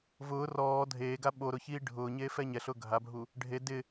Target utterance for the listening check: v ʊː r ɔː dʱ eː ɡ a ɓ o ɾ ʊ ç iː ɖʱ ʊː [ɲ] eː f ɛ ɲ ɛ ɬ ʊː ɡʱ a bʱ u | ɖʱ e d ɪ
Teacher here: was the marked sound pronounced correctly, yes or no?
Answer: yes